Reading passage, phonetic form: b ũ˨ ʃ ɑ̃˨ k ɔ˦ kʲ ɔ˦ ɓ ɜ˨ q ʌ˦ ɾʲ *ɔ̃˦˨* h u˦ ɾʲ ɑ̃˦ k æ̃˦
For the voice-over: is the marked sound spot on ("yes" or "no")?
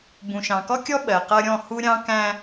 yes